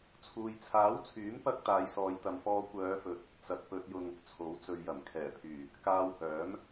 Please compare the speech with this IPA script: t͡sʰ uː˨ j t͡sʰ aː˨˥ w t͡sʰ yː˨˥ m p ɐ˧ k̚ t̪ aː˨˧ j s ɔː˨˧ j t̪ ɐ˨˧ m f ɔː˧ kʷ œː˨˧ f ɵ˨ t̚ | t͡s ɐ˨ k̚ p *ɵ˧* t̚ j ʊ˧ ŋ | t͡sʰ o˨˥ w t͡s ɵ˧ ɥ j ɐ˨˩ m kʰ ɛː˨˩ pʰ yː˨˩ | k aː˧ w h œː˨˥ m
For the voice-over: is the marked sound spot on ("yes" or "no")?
yes